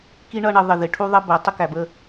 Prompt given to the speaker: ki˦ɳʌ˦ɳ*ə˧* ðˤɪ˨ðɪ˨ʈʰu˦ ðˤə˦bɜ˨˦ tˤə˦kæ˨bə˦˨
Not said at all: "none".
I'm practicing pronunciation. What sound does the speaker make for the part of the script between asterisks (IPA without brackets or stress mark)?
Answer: ə˧